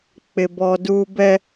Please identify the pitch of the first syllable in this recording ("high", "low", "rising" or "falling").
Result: high